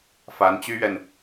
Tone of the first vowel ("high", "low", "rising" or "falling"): rising